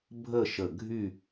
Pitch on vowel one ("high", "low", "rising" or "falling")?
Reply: falling